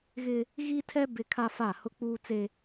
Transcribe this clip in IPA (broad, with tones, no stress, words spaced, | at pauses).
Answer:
ɣɪ˦ | ɣi˦tʰɛ˦ bɪ˦kʰa˦fa˦˨ hʊ˦k͡puː˦t͡se˦